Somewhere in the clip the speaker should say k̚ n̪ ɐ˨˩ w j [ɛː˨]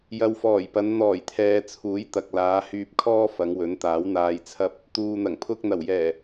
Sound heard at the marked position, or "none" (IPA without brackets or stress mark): ɛː˨˩